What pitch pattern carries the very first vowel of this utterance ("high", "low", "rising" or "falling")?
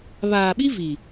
low